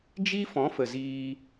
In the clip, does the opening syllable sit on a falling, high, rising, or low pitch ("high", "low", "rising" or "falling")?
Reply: high